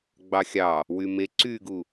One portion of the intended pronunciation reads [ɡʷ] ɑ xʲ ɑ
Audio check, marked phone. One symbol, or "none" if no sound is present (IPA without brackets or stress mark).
ɡ͡b